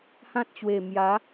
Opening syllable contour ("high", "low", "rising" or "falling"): high